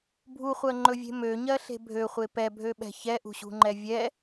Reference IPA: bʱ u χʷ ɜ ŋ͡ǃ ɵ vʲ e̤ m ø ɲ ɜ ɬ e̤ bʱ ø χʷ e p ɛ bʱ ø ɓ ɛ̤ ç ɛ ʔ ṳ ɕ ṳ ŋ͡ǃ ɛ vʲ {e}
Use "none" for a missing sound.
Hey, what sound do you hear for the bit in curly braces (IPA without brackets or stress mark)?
ɛ